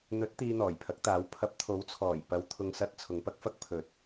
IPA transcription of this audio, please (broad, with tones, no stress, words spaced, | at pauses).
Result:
n̪ɵ˨˥t̚ t̪iː˧n̪ɔː˨˩jpʰɐ˨˥k̚t̪aː˨˥w pʰɐ˨˥p̚t̪ʰo˨˥wt͡sʰɔː˨˩j pɐ˨w t̪ʰʊ˨ŋsɐ˧t̚ t͡sʰʊ˨˧ŋpɐ˥k̚fɐ˥k̚ pʰɵ˨t̚